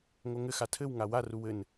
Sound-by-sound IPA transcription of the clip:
ŋ o ŋ ɘ x a tʰ ɘ w ŋ a w a r u w ɘ n

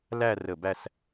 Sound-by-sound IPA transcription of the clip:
l æ˥˧ r ə˧˩ b æ˥˧ s

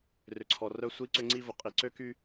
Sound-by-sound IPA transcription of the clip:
r ʏ˨ ǀʰ ɔ˨ r œ˦ sʷ i˦ ǀ ʏ˦ ŋ͡ǀ i˦ v ʊ˨ qʼ i˨ ǀ ø˦ k y˦

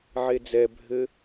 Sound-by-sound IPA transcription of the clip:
ʕ e d͡z ɛ bʱ ɘ

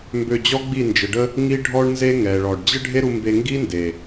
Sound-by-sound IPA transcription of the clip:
m b ø˧ d͡ʑ ɔ˦ ɡ͡b i˦˨ n d͡ʒ ə˨ ɖ ə˦ | ŋ i˦ ɖʱ ɔ˦ ɳ n z e˦ ŋ ɛ˨ ɭ ɔ˨ ɖ d͡ʑ ə˦ ɖʱ e˦ ɾ u˧ m b e˧ ŋ ɡ i˦ n d e˨

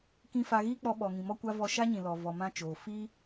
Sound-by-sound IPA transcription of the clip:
k ĩ˦ f a˧ ɣ iː˦ k͡p ɔ˧ ɓ ɔ˨ ŋ ĩ˨ m ɔ˦ kʷ a˦ v ɔ˧ ʃ a˦ ɲ ĩ˨ l ɔ˨ v ɔ˨ m ã˦ t͡ʃ oː˨ f iː˦

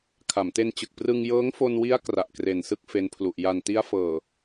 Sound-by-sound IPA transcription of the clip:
kʰ a˩˦ m t e˧ n t͡ɕ ɯ˨˩ k̚ p r ɯ˧ ŋ j ɤː˦˥ ŋ f o˧ n w i˦˥ a̯ k r a˨˩ ʔ k r e˨˩ n s ɯ˦˥ k̚ f e˦˥ n pʰ l u˨˩ ʔ j a˨˩ n t i˦˥ a̯ f ɤː˨˩

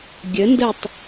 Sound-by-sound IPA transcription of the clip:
ɡʲ ə n d ə tˤ

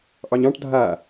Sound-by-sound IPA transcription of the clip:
ʔ ɑ ɲ ɑ̃ ʈ dʱ a

